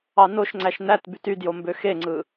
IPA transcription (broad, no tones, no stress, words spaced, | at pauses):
ɑnoʃŋ͡ǀæʃ næt bytydjo mbøxeŋ͡ǀɯ